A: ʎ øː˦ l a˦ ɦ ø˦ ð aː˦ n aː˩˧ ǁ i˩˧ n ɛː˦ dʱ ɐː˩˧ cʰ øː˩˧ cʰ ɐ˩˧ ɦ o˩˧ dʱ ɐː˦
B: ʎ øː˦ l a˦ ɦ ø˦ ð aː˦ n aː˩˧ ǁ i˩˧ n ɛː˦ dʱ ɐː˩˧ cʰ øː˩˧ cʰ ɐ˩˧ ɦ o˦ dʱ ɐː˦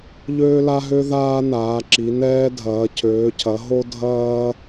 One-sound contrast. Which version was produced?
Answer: B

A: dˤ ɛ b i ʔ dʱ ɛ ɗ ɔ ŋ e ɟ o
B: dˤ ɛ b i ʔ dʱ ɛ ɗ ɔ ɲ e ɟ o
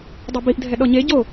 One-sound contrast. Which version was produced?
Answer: B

